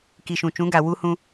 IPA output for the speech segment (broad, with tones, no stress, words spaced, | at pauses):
ki˨ʃũ˨t͡ʃũ˨˦ɡa˨ wu˦hũ˦